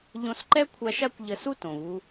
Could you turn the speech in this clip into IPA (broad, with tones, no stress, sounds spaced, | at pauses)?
ʎ õ˧ s ǃ ɛ˥ kʷʰ a˧ ʃ a˥ kʷ ʎ ə˧ s u˥ t õ˩ v u˧